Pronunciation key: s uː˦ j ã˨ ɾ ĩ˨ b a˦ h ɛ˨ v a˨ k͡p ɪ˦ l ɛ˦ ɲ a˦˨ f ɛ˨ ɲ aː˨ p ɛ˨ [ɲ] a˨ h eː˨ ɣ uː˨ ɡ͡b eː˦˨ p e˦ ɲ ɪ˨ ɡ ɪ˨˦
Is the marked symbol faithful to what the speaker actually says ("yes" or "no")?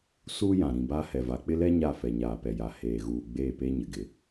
no